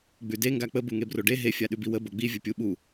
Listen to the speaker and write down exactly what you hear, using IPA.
ɡ͡b ʉ d e ŋ ɡ a k͡p ə b u ŋ e b r o ɖ e ɦ e fʲ a ɗ ʉ b i w ə b o ɡ͡b i vʲ ə pʲ u ɓ u

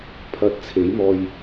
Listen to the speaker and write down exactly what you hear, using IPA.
pʰ ɐ˧ t̚ t͡sʰ e˨˥ j m ɔː˧ j

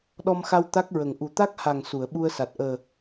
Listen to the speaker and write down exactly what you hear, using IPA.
ɗ ɔ˧ m x a˧ w t̪ a˦˥ k̚ ɹ ə˨˩ ŋ ʔ u˨˩ t̪ a˦˥ k̚ h a˨˩ ŋ s u˨˩˨ ə̯ ɓ u˧ ə̯ s a˨˩ t̚ ʔ əː˨˩

